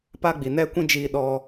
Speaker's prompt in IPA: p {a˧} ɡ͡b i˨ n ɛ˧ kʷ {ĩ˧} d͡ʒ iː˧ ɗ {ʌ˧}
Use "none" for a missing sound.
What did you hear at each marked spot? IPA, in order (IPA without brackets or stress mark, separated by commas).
a˧, ĩ˧, ɔ˧